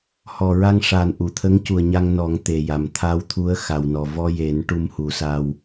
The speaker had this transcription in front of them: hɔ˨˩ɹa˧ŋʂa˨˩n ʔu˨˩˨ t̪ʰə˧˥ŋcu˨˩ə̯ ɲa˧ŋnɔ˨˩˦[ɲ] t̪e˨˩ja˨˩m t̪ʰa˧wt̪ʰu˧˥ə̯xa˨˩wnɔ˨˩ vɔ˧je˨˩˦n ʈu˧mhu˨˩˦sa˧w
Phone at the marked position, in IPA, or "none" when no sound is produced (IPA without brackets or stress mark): ŋ